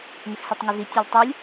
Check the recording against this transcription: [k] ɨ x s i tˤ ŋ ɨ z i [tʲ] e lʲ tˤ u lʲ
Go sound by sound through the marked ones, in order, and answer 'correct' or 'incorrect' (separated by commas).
incorrect, correct